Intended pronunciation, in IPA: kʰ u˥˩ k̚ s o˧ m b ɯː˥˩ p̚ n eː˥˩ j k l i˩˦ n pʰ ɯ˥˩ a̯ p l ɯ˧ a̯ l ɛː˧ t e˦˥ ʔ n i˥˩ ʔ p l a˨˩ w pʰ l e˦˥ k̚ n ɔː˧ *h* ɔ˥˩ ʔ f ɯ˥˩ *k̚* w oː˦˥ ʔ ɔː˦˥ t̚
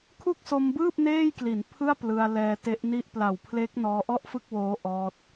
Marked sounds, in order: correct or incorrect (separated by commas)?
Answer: incorrect, correct